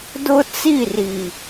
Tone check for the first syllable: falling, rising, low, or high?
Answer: high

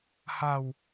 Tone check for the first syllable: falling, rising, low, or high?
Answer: low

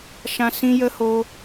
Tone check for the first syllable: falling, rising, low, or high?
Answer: high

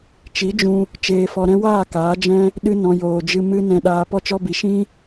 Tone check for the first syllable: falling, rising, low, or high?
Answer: rising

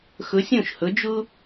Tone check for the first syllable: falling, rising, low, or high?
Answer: rising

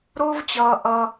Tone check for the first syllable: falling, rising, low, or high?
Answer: high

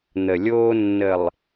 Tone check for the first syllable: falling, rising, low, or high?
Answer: low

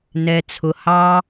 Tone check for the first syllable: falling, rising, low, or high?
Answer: low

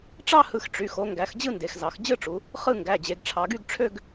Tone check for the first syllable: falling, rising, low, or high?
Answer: falling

